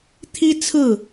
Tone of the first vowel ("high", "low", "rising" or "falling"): high